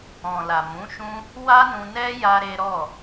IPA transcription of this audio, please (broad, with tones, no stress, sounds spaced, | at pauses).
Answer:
ɔ̃˨ l a˨ m ũ˨˦ ʃ ũ˦ | w a˦ n ũ˧ n ɛ˦ j a˦ ɾ e˦ ɾ ɔ˦˨